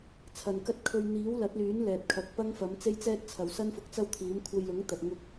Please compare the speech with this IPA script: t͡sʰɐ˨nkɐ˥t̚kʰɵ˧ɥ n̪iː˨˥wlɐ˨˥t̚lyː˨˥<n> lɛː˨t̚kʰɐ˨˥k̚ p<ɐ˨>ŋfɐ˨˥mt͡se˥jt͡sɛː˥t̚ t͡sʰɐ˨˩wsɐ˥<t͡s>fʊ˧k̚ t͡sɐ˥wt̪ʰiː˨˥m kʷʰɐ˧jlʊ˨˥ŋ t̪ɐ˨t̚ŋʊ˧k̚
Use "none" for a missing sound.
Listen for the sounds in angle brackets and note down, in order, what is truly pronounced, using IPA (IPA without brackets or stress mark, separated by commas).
n, ɐ˥, n